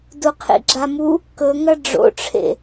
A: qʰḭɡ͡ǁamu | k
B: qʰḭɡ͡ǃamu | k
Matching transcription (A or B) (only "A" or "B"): A